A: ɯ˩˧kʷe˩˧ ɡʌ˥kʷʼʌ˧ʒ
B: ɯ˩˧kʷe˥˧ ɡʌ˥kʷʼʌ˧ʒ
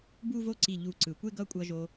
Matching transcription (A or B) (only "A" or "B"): B